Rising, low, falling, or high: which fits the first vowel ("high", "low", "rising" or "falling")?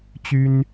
high